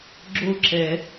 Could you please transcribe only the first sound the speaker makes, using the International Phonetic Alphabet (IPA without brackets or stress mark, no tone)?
ɡ͡ǁ